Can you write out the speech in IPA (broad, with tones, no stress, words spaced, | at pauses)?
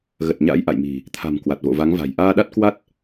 ɣə˨˩t̚ɲa̰˧˥jʔa̰˧˨jmi̤˨˩ | t̪ʰa̤˨˩m kwa˨˩t̚vo̰˧˨va˨˦ŋva̤˨˩j ʔaː˧ɗa˦˥t̚kwa˦˥t̚